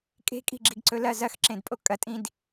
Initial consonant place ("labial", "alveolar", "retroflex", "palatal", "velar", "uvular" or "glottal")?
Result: velar